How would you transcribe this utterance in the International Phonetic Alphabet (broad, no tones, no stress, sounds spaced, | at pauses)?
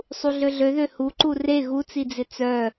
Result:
sˤ u ɮ ø ɮ ø ð ø h u ǃ u r e ɣ u t͡s i d͡z ɪ t͡s œ